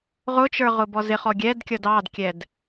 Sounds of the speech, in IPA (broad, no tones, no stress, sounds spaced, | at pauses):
ʁ ʊ t͡ʃ ə˞ ʁ ʊ b ɔ z ɪ χ ɔ ɡʲ ɛ d kʲ ʌ d ɑ d kʲ ɛ d